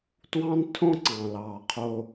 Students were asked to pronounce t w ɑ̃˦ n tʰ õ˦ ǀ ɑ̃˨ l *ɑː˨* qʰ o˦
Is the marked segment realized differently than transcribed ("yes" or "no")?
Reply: no